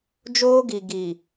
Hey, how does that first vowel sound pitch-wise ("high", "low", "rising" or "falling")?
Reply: high